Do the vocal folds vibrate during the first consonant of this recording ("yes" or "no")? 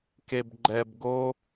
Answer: no